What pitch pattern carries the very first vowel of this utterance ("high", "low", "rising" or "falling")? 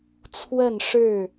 falling